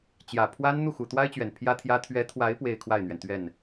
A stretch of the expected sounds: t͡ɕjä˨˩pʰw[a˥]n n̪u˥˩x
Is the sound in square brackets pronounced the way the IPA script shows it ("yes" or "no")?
yes